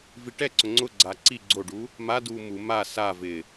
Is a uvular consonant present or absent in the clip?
absent